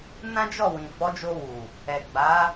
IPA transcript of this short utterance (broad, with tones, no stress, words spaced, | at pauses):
nã˦d͡ʒɔ˦˨wĩ˨ fɔ˨˦d͡ʒo˧wu˨ | ɛ˨ɡ͡ba˨˦